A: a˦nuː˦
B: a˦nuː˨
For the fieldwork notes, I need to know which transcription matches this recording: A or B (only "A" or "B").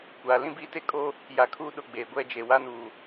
B